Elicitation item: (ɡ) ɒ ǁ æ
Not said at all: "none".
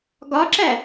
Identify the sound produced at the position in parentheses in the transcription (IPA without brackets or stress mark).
ɡ